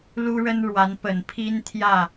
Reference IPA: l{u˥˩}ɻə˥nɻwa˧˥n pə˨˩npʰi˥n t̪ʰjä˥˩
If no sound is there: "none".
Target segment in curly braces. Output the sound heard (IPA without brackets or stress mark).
u˥